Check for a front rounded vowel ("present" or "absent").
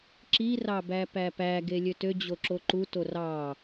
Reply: present